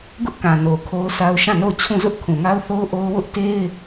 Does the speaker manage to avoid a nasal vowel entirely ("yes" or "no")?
no